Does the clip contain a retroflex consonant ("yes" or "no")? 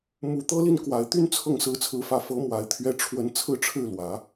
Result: yes